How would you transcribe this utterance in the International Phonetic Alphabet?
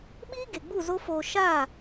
ɓ iː˦ ɡ e˨ ɡ͡b u˦˨ z o˦ f oː˧ ʃ a˦˨

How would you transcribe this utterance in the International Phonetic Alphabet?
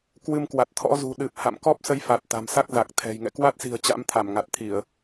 k w ɨ˧ m k w a˨˩ t̚ t̪ʰ ɔ̰˧˥ z ṳ˨˩ ɗ ɨ˨˩ p̚ h a̰˧˨ m k ɔ˦˥ p̚ s ə˧ j f a˨˩ t̚ t̪ a̤˨˩ m s a˦˥ k̚ z a˨˩ k̚ t̪ʰ ɛ̤˨˩ j ŋ ɛ̰˧˨ k w a˦˥ t̚ s i̤˨˩ ə̯ t͡ɕ a̰˧˥ m t̪ʰ a˧˩ m ŋ a˨˩ t̚ t̪ʰ i˧˩˨ ə̯

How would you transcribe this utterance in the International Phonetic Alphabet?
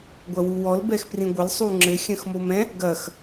ɡʷ ɐ w u w ɔ l b ɛ x p r ĩ ɡʷ ɘ l sˤ u ŋ͡ǁ ɘ xʲ ɐ̃ x m o m ɛ̃ | ɡ ɐ x

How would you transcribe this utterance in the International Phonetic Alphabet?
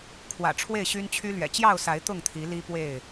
kʰ w ä̰˨˩ ʈ͡ʂʰ w e˥˨ ɪ̯ ɕ y˦ n t͡ɕʰ y˦ l ɥ ɛ̰˨˩ t͡ɕ j ɑ˥˨ ʊ̯ s a˨˦ ɪ̯ t̪ ʊ˥˨ ŋ t̪ʰ i˨˦ l i˦ p w e˥˨ ɪ̯

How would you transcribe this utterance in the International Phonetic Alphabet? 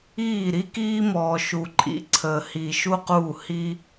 iː˥˩ ɾ i˥ k iː˥ m ɔː˨ ʃ u˨ ǃʼ ḭ˨ ǀʰ əː˨ h i˨ ʃ u˥ q uː˥˩ h i˥

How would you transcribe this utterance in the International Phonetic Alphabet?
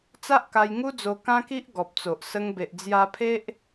t͡s a˦ ʔ k a˧ j ŋ u˦ d͡z o˧ k ã˦ k i˦ ʔ ɡ ɔ˨ p̚ t͡s o˨ ʔ s ə˧ ŋ b e˨ ʔ d͡z j a˧ pʰ e˦ ʔ

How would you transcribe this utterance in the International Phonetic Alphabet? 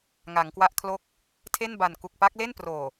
ŋ a˩˦ ŋ k w a˦˥ ʔ kʰ l o˥˩ k̚ | tʰ e˥˩ n b a˨˩ n k u˨˩ k̚ p a˦˥ k̚ l e˥˩ n p r oː˨˩

